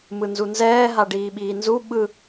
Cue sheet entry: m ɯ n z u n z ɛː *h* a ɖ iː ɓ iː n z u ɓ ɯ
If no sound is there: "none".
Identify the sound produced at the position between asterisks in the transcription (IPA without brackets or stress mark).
ɦ